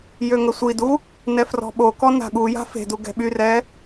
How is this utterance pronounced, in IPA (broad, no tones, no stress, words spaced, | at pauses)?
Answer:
jøŋəsʷidu | nɛfrɔ̤ɓokɔ na̤ɠuja̤ fe̤du ɡɛ̤ɓyrɛ